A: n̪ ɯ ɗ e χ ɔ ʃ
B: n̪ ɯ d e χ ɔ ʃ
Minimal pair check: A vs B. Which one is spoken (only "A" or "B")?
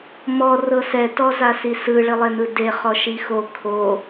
B